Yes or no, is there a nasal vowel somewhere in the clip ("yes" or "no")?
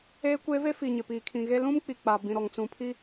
yes